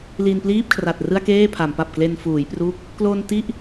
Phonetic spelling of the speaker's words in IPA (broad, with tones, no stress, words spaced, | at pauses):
li˧npliː˥˩p̚kʰra˨˩t̚ rɯ˥˩a̯keː˥˩pʰa˩˦mpa˨˩p̚ kle˧nfuː˩˦jpruː˦˥k̚ | klo˧n ti˥˩ʔ